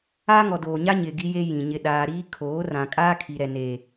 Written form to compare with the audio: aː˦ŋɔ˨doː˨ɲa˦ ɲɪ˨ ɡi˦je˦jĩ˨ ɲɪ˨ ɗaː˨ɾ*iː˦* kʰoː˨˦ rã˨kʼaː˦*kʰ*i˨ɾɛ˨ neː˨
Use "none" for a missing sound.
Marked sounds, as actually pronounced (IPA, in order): iː˦, kʰ

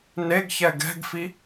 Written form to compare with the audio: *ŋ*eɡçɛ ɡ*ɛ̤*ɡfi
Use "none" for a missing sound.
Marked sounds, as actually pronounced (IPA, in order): n, ɛ̤

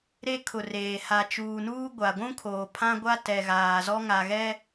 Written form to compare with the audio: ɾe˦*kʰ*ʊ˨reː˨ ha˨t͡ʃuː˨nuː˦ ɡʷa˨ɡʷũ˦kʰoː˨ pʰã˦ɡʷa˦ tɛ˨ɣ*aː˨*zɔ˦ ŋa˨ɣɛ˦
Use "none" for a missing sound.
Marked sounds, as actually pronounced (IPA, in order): kʰ, aː˨

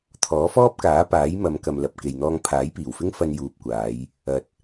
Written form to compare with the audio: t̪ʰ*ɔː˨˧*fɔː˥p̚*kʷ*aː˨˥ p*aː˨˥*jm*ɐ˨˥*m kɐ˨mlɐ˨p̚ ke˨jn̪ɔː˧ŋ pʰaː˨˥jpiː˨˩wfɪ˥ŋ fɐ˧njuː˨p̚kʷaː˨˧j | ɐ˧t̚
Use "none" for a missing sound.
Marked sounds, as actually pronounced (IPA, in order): ɔː˨˥, k, aː˨˥, ɐ˨˧

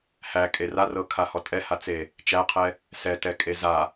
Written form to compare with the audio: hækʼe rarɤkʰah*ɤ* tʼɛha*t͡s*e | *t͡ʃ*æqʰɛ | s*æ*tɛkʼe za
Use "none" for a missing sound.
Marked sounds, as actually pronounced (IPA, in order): ɔ, t͡s, t͡ʃ, ɛ

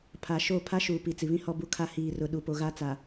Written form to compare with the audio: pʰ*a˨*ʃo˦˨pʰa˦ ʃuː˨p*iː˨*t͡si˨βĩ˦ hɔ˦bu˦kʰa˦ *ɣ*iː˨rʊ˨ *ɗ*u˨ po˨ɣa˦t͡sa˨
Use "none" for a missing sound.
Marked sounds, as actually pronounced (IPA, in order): a˨, i˨, h, ɗ

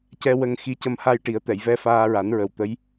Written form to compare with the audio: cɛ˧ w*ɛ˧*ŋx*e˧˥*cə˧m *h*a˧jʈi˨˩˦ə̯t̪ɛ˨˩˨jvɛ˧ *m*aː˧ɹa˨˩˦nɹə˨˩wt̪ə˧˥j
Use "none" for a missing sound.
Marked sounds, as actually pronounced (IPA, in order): ə˧, i˧˥, h, f

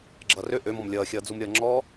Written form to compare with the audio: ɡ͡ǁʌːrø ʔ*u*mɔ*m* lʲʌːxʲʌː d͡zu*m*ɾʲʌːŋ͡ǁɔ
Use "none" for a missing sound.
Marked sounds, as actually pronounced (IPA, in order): ø, m, m

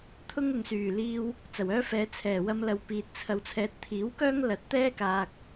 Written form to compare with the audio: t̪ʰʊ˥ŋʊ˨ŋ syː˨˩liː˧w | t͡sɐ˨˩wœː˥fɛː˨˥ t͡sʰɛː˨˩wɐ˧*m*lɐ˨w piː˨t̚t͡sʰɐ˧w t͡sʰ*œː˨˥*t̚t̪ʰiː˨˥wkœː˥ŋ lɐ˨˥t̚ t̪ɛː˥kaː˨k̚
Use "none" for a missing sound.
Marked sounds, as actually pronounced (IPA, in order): m, ɛː˨˥

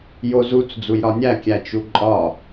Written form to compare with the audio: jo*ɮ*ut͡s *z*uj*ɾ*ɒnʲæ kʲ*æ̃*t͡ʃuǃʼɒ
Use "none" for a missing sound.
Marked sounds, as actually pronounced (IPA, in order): z, d͡z, ɾ, æ

